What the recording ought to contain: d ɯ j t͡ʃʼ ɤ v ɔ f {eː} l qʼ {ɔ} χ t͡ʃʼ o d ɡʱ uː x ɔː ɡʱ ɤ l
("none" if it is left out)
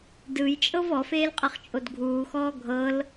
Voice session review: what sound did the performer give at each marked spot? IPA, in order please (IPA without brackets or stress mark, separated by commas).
eː, ɤ